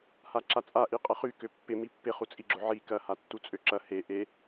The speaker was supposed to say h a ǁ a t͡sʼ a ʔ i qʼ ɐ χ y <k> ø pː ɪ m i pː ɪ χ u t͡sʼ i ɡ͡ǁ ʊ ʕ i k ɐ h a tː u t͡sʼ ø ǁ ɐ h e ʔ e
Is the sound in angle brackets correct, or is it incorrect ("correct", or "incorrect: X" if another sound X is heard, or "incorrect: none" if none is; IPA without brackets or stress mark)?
correct